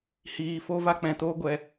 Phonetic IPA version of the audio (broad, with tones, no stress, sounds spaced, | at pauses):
h iː˨ f o˧ v a˦ k͡p ɛ̃˨ t oː˦ ɡʷ ɛ˧